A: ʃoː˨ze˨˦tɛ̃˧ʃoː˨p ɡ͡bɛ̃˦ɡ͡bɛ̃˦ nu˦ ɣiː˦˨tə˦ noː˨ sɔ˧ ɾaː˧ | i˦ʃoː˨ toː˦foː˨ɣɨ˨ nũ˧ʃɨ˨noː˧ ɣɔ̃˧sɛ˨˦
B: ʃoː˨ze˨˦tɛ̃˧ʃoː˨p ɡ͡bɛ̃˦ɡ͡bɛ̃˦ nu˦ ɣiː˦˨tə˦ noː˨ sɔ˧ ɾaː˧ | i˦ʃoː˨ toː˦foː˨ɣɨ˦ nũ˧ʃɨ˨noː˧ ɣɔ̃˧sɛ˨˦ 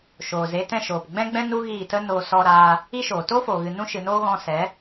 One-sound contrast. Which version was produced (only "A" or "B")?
A